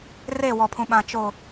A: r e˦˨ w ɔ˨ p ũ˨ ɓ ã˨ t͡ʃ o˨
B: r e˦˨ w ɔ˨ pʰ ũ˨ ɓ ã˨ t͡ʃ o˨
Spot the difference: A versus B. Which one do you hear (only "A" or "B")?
B